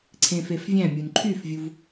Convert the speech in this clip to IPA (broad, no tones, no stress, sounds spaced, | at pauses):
ǀʰ ẽ f e f vʲ æ̃ mʲ u n ǃʰ y f vʲ u v